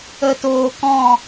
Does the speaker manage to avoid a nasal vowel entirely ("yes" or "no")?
no